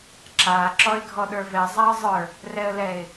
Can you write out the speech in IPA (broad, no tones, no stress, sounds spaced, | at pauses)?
ǁ a ǁ ɔ ɪ̯ ɡʱ ɔ ɗ ə˞ v ɛ zˤ a ə̯ zˤ ə˞ | r ɛ ə̯ l ɛ ɪ̯